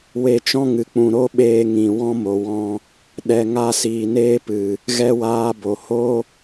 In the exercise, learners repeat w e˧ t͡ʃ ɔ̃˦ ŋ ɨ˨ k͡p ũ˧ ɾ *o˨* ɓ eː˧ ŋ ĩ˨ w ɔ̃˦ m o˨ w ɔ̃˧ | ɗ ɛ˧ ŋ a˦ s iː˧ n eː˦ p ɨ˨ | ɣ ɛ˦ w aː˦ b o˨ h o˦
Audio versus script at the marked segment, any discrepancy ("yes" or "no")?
yes